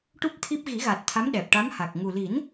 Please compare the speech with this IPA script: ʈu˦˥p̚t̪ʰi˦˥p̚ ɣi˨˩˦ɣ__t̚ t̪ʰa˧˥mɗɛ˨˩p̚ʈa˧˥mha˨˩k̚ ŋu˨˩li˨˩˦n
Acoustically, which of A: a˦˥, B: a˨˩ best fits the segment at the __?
B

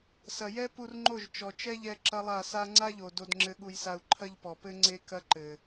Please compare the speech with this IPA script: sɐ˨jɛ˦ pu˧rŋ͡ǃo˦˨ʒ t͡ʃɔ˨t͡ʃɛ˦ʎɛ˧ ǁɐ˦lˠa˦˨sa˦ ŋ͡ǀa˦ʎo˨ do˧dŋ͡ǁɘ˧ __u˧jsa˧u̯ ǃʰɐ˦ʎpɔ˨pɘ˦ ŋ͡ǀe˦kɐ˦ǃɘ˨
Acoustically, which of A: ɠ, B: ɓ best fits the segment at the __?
A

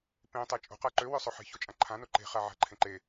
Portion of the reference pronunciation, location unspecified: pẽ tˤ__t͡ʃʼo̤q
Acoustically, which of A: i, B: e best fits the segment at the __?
B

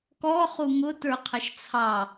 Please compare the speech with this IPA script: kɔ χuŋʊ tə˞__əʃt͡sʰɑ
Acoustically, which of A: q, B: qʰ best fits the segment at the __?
B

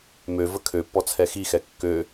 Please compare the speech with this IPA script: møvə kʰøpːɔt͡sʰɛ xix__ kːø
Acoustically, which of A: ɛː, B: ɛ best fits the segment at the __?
B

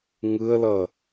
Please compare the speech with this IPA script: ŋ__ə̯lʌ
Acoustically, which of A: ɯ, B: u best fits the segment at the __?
A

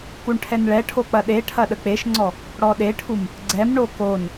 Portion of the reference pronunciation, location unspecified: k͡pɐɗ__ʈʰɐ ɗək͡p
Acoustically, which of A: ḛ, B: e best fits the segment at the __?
B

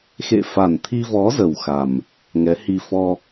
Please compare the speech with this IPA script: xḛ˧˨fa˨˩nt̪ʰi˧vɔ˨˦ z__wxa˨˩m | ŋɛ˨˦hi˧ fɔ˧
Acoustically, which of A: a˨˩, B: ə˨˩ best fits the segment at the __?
B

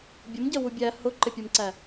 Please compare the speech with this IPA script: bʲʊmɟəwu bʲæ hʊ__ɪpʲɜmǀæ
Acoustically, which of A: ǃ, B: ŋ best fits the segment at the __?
A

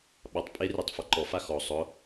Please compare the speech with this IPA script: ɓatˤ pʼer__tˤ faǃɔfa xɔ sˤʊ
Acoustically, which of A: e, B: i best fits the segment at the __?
A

